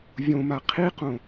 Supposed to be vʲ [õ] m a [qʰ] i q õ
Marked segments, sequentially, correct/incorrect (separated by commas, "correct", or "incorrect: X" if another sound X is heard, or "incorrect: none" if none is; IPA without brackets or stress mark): correct, correct